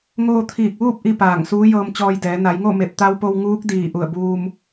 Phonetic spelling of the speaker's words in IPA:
ŋ oː˧ t̪ʰ iː˧˩ k̚ ʋ uː˥˨ p̚ ʔ i˥˨ p aː˧˩ ŋ s uː˧˥ j ɤː˧ m t͡ɕ ɔː˧ j d ɛː˩˧ n a˩˧ j ŋ o˥˨ m e˧˩ p̚ t̪ a˧ w p o˧ w ŋ uː˧˥ k̚ d iː˧˩ ʔ u˧˩ ə̯ b uː˧ m

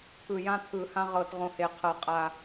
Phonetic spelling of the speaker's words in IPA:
t̪ʰ ɯ˨˩ j ã˧ t̪ʰ ɯ˨˩ h ã˧ ʁ ɤ˨˩ t ʁ õ˧ h e˨˩ qʰ ɤ˨˩ qʼ a˨˩

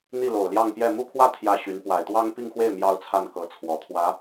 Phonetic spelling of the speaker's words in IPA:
n̪ i˥˩ l o˨˩ ʊ̯ l j ɑ˥˧ ŋ p j ɛ˥˧ m u˥˧ kʰ w ä˥˧ t̪ʰ j ä˥˩ ɕ y˧˥ n p w a˨˩ ɪ̯ t̪ w ɑ˥ ŋ p i˥˧ ŋ x w e˥˩ ɪ̯ m j ɑ˥ ʊ̯ t͡sʰ a˥˩ n k ɤ˧˥ t͡sʰ w ɔ˨˩ t̪ʰ w ä˧˥

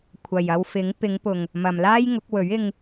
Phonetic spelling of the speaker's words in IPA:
kʷʰ ɐ˨ j ɐ˧ w f ɪ˨˥ ŋ p ɪ˨˧ ŋ p ʊ˨ ŋ | m ɐ˨ m l aː˥ j ŋ ʊ˨˥ k̚ w ɵ˨˥ ɥ ɪ˧ ŋ

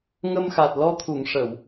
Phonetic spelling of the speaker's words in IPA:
ŋ ə˧ m x a˨˩ t̚ l ɔ˧ t̪ʰ u˨˩˨ ŋ ʂ ə˨˩˨ w

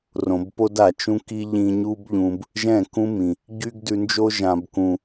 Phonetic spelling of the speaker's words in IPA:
r õ˨ b p o˦ d a˨ t͡ʃ ũ˦ k i˦ ʎ ĩ˧ ɲ u˦ b ʎ ũ˧ b | ʒ ɛ̃˦˨ k ũ˦ m ĩ˨ | ɟ y˦ ɡ d ʉ˧ n d͡ʒ o˦ ʒ ã˦ b k ũ˦

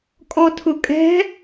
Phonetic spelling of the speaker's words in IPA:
kʼ ɔ tʰ ʊ kʼ ɛ̤

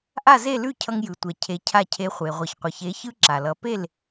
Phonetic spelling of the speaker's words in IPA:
ʔ a˥˩ z e˥˩ l ʉ˥˩ cʰ ʌ˧ ŋ j ɯ˩ tʷ ɛ˩ cʰ e˩˥ cʰ a˥˩ cʰ e˧ χʷ e˩ ʁʷ ʌ˩ ç qʷ ʌ˩ ç e˩˥ ç ɯ˥ ǁ a˩ l ʌ˩˥ p e˥˩ l

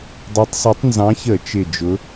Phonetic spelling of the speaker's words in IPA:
dˤ ɜ˨˦ tˤ s ɒ˨˦ tˤ n z ɑ̃˨˦ ç ə˧˩˧ t͡ʃ ɪ˧˩ d͡ʒ ʊ˨˦

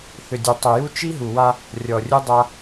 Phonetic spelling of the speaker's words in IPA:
θ ʏ˨ dʲ e˨ tˤ ʏ˨ j u˦ t͡ʃ i˦ ɦ u˨ w a˦ | rʲ ɔ˨ rʲ u˦ dˤ a˦

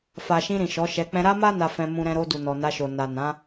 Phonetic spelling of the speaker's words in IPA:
f a˨ ʃ ĩ˧ ɾ ĩ˨ ʃ ɔ˨˦ ʃ ɛ˧ k͡p ɛ̃˦ ɾ a˦ m a˦ n a˧ f ɛ̃˧ m ũ˧ ɾ ɛ̃˧ ɾ o˧ d u˨ n ɔ˨ n a˧ ʃ o˨ n a˨ n ã˨˦

